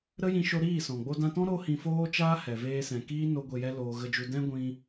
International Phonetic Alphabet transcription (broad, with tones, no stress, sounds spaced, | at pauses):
ɾ ə˦ j ĩ˧ ʃ o˧ ɾ iː˦˨ s ɔ̃˨ ɡ͡b o˧ d ã˧ t ɔ̃˦ ɾ o˦ h ĩ˧ f oː˦ t͡ʃ aː˦ h ɛ˨ v eː˧ s ɛ̃˨ k iː˦ n o˦ ɡʷ e˧ j ɛ˦ l oː˧ ɣ ə˧ d͡ʒ u˧ d ɛ̃˦ ɡʷ ĩ˧